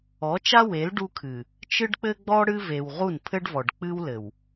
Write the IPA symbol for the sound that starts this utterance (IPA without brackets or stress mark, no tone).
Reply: ɔ